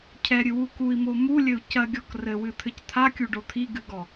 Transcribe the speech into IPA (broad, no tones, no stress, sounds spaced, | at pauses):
cʰ ɛ ɾʲ ɨ w u k u i̯ m o m u lʲ ɘ u̯ c ɐ ɡʲ ɔ k r ɘ w ɨ t̪ʰ ɘ c t̪ʰ a kʲ u ɖ o t̪ʰ i ɡ ɨ ɡ ɔ